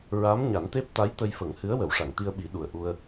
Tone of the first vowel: rising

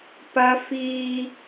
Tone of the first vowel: high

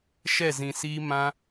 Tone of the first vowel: falling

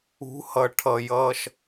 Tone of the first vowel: rising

